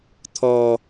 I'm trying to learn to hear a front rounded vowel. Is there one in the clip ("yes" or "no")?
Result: no